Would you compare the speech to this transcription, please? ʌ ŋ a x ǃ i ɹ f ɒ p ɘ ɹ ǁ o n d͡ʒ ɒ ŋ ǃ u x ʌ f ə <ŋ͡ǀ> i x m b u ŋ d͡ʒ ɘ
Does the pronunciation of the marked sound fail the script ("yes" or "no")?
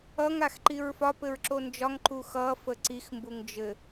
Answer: yes